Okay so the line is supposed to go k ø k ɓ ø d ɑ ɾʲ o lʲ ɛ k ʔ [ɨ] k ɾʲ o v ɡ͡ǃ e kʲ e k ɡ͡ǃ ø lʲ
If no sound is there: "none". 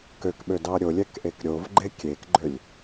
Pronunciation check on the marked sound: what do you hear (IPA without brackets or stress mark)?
e